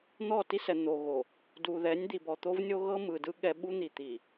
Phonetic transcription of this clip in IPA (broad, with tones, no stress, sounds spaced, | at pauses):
n̪ ɔ˦˨ t i˦ s ɛ˨ n̪ o˨ ɣ o˨ | d u˨ ð ɛ˨˦ nʲ d̪ i˨ b ɔ˨ t̪ o˦ v nʲ o˦ ɣ ɤ˦ m ɯ˨ d ɯ˦ ɠ ɛ˦ ɓ u˦ n̪ i˨ t̪ i˨